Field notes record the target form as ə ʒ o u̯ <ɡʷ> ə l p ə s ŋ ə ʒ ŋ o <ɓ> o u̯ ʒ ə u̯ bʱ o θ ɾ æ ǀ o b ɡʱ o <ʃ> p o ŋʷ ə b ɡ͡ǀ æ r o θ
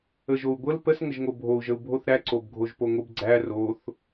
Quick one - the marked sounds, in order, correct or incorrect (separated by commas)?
correct, incorrect, incorrect